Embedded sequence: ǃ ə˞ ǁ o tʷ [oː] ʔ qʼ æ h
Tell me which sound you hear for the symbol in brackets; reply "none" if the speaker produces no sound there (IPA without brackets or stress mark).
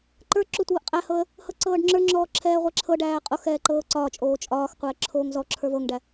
ɤː